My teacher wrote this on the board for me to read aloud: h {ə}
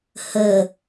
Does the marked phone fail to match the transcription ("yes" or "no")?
no